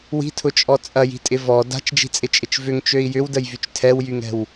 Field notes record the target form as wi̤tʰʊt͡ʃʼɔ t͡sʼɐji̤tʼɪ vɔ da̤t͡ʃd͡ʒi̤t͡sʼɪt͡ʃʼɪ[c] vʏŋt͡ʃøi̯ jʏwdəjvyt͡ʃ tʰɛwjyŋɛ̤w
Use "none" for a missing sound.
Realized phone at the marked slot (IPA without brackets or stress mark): t͡ʃ